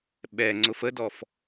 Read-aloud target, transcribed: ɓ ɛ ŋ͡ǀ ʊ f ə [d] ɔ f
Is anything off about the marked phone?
no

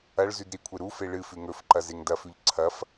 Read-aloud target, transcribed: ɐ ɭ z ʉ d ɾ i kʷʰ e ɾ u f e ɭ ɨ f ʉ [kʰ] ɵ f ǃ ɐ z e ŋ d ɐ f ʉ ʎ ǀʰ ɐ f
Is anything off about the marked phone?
yes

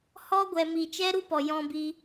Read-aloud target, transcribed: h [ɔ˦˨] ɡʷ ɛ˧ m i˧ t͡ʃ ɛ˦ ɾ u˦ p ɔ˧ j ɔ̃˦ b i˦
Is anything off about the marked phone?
yes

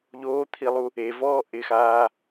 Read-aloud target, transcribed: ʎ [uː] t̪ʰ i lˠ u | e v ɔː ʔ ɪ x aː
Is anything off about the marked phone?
yes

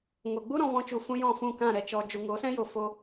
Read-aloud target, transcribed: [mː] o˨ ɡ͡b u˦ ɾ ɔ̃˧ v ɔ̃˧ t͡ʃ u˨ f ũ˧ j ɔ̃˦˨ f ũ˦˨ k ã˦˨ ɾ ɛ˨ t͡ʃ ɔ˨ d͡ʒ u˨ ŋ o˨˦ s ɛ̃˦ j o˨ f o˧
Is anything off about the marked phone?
yes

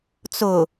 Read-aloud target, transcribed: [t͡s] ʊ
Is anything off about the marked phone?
no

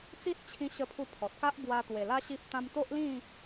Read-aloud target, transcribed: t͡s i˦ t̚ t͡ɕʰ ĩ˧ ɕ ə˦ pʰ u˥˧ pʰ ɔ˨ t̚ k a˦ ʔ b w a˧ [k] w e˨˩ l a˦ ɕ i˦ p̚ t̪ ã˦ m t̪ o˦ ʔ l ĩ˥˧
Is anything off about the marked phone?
yes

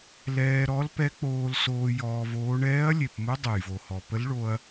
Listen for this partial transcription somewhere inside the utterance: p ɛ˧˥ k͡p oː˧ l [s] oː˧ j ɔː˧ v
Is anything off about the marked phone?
no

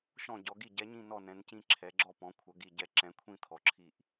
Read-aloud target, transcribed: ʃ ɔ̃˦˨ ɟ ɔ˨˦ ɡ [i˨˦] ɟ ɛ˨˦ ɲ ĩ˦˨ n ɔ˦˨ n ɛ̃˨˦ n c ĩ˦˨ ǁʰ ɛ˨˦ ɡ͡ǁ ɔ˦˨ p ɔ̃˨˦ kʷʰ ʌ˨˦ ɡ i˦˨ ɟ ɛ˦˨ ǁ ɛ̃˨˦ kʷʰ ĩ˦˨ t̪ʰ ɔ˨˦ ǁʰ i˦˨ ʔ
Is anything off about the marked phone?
yes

